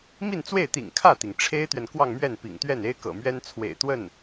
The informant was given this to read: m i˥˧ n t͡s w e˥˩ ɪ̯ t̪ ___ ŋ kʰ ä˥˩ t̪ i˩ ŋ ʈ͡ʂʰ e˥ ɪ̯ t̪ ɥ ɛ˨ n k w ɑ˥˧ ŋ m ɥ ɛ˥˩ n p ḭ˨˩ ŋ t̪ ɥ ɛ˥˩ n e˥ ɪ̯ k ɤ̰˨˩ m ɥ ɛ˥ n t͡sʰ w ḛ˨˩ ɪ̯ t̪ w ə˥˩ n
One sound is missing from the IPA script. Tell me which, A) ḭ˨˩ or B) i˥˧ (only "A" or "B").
A